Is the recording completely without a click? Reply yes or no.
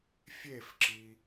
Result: no